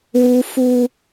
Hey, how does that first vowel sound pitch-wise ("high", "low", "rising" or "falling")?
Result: high